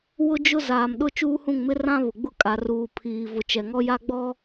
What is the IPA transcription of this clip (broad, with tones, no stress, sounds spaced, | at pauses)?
w ʊ˦ d͡ʒ ʊ˦ z aː˨ m ɗ ʊ˦˨ t͡ʃ uː˦ h ũ˦˨ ŋ m ɪ˦ r ã˦ β ʊ˨ ɡ͡b ʊ˦ kʼ a˨ r uː˨ pʰ iː˨ v ʊ˨ t͡ʃ ɛ˨ ŋ ɔ˦ j a˦ ɡ͡b ɔ˦